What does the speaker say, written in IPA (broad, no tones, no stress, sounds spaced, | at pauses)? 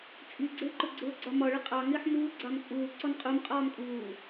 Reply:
t͡sʼ i ɡ͡ǀ ɪː ǃ ʊ ɡ͡ǀ ʊː ɡ͡ǀ ɒ m ɒ ɭ ɪ qʼ ɑ ŋ ɪː ħ m uː ɡ͡ǀ ɑ m t͡sʼ uː ǀ ɔ n qʼ u m qʼ ɒː m kʼ uː